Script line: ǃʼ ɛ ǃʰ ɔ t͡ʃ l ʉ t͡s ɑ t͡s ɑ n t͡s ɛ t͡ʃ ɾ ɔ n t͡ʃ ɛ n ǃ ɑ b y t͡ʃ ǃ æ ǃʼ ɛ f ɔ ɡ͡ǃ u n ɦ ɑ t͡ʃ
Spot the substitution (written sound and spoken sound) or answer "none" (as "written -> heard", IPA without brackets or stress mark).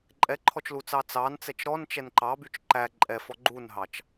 ʉ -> u